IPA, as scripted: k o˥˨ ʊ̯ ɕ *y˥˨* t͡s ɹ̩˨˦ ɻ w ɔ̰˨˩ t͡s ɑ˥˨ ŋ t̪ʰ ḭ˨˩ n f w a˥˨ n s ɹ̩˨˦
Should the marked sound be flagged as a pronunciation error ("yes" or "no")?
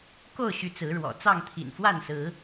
yes